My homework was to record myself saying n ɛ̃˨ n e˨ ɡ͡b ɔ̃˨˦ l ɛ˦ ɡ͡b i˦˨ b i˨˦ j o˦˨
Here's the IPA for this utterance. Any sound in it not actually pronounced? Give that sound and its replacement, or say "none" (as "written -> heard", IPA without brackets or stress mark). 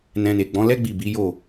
ɛ̃˨ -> ɛ̃˧